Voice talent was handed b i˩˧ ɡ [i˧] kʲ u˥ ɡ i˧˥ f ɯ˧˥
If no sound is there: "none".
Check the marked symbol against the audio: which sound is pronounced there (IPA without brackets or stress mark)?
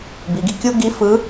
i˧